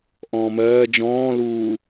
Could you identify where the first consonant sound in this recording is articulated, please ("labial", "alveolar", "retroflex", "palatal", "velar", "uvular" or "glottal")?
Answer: glottal